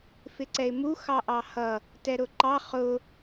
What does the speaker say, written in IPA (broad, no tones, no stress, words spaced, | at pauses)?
fɪǀɛɪ̯mu xɑʔɑhʌ | tɛɾʊǃɑ χʊ